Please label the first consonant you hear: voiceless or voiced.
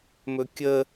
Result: voiced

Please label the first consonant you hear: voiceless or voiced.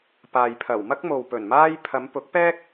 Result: voiceless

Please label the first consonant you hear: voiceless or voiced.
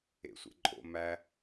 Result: voiceless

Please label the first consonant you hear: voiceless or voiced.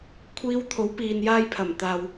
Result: voiceless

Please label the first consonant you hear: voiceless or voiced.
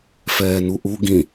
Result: voiceless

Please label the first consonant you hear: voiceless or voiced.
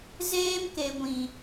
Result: voiced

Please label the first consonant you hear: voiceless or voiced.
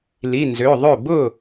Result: voiced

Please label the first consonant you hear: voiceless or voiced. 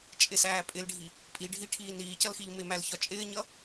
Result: voiceless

